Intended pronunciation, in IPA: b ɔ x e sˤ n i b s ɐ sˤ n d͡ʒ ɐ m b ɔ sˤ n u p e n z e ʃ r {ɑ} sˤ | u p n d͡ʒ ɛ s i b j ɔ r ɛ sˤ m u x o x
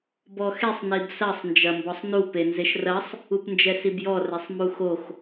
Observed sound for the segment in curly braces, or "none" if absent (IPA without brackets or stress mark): ɐ